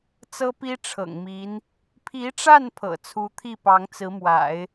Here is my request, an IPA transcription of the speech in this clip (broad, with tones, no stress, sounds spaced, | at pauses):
t͡s ɤ˥ p i˥ ʈ͡ʂʰ ɤ̰˨˩ ŋ m i˧˥ n | pʰ i˧˥ ʈ͡ʂ a˥˩ n pʰ ɤ̰˨˩ t͡sʰ u˧˥ t̪ʰ i˥˩ p ɑ˧˥ ŋ t͡s ɹ̩˧˥ m w a̰˨˩˦ ɪ̯